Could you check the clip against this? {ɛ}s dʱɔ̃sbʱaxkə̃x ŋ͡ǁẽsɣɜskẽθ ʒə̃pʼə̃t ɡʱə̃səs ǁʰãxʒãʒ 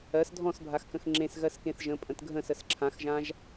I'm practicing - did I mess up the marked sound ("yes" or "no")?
yes